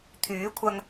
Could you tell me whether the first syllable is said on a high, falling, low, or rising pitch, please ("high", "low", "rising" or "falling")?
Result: rising